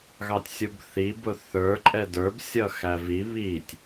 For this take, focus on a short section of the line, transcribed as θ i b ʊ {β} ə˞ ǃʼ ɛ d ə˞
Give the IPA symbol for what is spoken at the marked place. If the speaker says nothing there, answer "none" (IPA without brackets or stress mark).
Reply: θ